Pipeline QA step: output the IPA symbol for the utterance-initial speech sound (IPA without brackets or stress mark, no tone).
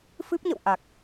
f